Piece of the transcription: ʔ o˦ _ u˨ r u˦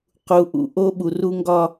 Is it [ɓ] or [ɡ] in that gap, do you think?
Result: ɓ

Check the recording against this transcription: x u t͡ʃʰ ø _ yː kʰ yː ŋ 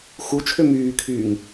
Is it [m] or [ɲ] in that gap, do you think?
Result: m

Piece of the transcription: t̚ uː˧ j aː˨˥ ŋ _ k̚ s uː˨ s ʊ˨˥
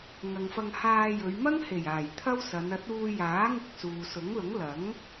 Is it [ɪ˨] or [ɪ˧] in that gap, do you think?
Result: ɪ˧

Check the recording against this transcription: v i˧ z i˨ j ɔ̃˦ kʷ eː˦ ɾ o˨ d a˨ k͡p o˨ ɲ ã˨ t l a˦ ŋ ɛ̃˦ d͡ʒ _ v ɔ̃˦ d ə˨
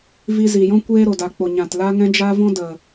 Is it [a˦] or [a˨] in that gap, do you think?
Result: a˦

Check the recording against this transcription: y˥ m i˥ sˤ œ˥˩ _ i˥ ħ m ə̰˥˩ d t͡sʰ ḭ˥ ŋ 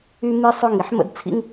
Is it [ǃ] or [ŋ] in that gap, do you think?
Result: ŋ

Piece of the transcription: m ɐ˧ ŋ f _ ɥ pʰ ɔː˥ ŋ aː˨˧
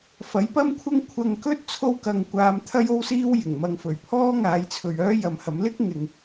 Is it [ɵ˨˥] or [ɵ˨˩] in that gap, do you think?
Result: ɵ˨˩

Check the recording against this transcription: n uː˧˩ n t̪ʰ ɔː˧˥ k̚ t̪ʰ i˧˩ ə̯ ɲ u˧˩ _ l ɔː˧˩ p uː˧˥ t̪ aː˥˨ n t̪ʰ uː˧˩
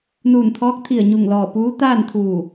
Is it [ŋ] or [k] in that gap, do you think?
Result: ŋ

